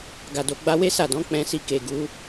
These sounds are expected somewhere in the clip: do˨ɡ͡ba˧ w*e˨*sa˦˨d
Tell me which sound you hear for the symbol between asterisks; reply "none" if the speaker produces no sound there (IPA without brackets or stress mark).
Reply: e˦